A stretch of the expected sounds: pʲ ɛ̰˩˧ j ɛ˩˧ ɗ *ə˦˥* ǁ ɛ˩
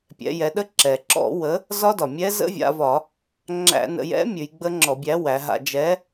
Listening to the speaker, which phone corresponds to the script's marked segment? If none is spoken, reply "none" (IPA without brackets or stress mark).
ə˦˥